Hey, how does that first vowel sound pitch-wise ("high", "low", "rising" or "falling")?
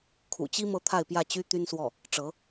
low